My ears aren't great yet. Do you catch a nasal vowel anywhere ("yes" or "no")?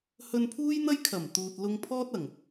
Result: no